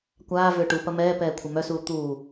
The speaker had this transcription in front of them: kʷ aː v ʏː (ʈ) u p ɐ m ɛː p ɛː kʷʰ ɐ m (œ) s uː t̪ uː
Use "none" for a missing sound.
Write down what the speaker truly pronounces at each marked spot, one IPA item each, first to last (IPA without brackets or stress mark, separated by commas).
ʈ, œ